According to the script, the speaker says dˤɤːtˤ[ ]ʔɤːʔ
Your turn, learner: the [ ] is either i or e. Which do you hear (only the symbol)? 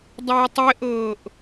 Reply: e